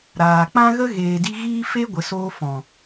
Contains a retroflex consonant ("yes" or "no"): no